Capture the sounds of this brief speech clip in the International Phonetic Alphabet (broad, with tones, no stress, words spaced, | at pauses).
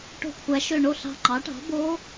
ʈo̤˧˩kʷʰæ˩˧ʃø˧˩ ɳo˥˩ɬɑ̤˧˩ŋ͡ǃɑ˩˥ʈɑ̤˩˥ bo˧˥